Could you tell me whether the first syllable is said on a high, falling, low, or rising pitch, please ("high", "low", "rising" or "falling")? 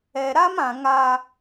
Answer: low